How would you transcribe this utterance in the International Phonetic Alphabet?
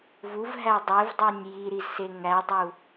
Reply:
v u v ɦ æ dˤ e v dˤ o nʲ j i ɾ i z s e ŋ æ dˤ u

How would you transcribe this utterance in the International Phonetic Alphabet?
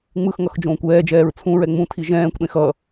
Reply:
ŋ͡m ɯ x ŋ ʌ x d͡ʒ õː kʷ ɛː d͡ʒ ɛː ɹ t͡sʰ ũ ɹ ɛ ŋ͡m ũ tʰ i ʒ ɛ̃ː kʷ ɗ ẽ x ʌ

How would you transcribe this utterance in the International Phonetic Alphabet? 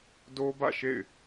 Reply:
d o˦ b ä̰˦˨ ʃ ḛ˦˨ ɪ̯

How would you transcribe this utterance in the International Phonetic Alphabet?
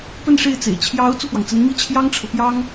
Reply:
p ə˥˧ n ʂ e˥˩ ɪ̯ t͡s ḛ˨˩ ɪ̯ t͡ɕʰ j ɑ˧˥ ʊ̯ t͡s u˥˩ p w ɑ˩ ŋ t͡s ə˧˥ n m i˥˩ t͡ɕʰ j ɑ˥ ŋ ʈ͡ʂʰ ɤ˨ p j ɑ˥ ŋ

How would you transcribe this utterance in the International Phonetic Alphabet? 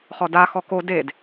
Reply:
χ ɔ d a x ɔ k o d e d

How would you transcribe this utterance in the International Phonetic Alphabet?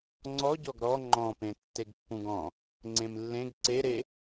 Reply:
ŋ͡ǀ ɔ ɟ ɔ ɡ ɾ ɔ ŋ͡ǃ ɔ̃ p ẽ tː e ɡ pː ũ ɡ ɔ̃ | ŋ͡ǀ ẽ m lː ẽ ɡ ǀ e ɾ e

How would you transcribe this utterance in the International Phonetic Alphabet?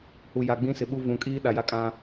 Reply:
h u˨ j a˨ ɡ͡b ĩ˦ s ɪ˨ ɓ u˦ v ũ˨ kʼ iː˦ ɗ a˨ j a˦ kʼ ã˦

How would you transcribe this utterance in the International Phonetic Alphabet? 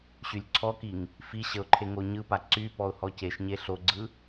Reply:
ɕ y lʲ ǀʰ ɔ k i ŋ | f i ɕ ə ʊ̯ ǃʰ e ŋ o ɲ ɯ p a ǀ y p ɔ ʊ̯ h ɔ c e ʃ ɲ e ɬ o ɡ͡ǀ ɯ

